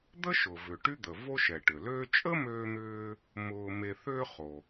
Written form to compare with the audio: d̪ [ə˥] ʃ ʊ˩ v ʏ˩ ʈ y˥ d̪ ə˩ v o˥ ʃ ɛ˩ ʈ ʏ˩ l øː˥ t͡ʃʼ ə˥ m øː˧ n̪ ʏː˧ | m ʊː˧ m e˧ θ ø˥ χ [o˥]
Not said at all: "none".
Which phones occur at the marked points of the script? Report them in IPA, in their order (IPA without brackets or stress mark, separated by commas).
ə˥, o˩